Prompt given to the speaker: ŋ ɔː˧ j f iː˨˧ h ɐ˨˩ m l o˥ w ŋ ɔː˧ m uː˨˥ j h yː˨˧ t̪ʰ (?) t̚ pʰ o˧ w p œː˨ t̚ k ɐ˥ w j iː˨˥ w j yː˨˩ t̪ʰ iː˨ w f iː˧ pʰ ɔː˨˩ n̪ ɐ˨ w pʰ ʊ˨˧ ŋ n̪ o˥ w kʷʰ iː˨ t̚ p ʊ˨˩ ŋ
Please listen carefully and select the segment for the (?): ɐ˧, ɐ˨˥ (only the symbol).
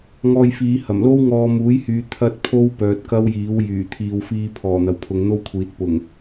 ɐ˧